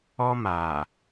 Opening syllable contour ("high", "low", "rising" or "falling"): high